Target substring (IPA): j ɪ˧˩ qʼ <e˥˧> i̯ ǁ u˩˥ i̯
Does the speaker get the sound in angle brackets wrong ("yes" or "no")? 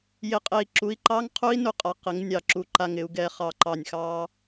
yes